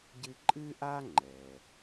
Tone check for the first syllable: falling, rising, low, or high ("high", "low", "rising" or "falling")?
high